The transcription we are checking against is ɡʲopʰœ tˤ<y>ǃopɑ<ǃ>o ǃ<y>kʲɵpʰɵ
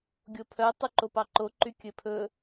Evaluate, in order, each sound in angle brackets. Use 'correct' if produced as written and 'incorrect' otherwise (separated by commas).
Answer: correct, correct, correct